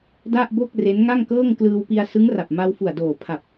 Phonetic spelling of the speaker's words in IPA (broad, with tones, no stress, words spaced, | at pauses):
da˥˩ʔbo˥˩k̚ re˦˥nŋa˥˩ŋkɤː˥˩ŋ klɯː˧wpi˧a̯ sɯ˦˥ŋra˨˩p̚ ma˧wfu˨˩a̯doː˨˩ pʰa˨˩p̚